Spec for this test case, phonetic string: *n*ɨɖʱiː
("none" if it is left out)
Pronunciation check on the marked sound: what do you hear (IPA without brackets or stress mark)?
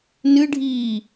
n